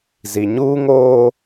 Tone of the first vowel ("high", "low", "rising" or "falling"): low